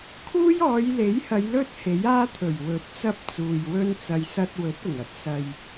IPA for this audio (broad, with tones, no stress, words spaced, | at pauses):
kʰuː˥jɔː˨˧jle˨˥jhɐ˨˧j lɵ˥t̚ he˨˥jaː˥t̪ʰɵ˨˩ɥ wɵ˨˥t̚t͡sɐ˥p̚ t͡suː˨jwɵ˥nt͡sɐ˧j sɐ˧t̚wɵ˨˥t̚ʊ˨˩ŋɐ˨t̚ sɐ˨j